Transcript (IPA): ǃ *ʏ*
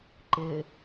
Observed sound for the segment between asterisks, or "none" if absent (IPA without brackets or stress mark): ɪ